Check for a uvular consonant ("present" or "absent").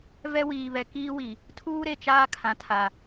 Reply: absent